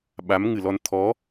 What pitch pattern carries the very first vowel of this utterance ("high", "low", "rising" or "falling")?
rising